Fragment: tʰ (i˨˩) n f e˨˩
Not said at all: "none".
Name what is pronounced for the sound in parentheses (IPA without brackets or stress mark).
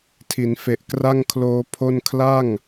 i˩˦